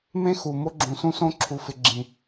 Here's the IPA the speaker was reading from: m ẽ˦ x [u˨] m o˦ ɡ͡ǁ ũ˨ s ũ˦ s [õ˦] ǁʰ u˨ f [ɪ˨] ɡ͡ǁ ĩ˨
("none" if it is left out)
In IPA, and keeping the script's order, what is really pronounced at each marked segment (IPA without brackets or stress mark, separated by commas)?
u˨, õ˦, ɪ˨